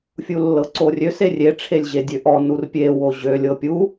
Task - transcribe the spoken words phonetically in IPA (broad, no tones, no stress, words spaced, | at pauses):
fʲulːɤǀorʲøs erʲe ʈ͡ʂʰelʲʑedʲøʔɔ nurpʲe woʑølʲ ɤpʲu